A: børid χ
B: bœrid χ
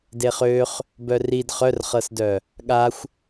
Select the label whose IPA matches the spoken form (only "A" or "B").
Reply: B